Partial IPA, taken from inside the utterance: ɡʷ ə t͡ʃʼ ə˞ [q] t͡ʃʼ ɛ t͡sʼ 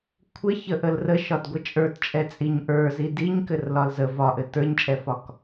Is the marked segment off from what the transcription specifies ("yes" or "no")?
yes